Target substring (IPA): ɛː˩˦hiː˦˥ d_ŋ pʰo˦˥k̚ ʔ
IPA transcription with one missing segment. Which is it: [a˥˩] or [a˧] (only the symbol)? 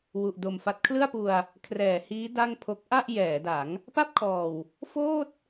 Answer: a˥˩